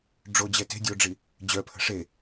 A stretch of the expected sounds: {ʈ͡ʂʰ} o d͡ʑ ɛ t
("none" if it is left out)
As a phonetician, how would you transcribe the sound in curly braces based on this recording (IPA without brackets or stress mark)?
ɖ͡ʐ